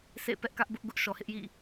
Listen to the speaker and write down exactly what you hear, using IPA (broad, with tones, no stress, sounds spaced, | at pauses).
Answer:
sʰ ḛ˦˨ p ɛ˦ ʔ k ä˦ ʔ b ʊ˦ ʔ ɡ ʊ˦ ʔ ʃ ɔ˨ h ɪ˦ ʔ j ḭ˦˨